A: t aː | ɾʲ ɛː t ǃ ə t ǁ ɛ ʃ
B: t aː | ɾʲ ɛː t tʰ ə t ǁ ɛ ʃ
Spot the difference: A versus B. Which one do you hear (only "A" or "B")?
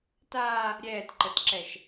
A